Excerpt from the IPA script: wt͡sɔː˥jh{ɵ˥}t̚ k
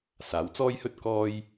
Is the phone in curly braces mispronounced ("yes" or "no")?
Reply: no